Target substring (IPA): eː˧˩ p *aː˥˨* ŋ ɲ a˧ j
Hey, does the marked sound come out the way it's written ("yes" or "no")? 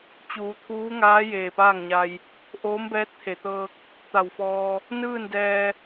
yes